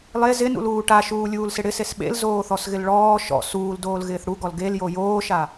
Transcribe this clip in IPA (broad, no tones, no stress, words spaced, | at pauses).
lˠe zɪnṵluː ʈaʃuːlʲuːlsɪ ɽɪses ɓḛlzoːθɔsɣɪl ɭɔː ʃɔ̰ suːldoːlɣɪːθ ɽuɡɔl ɡeljo joːʃa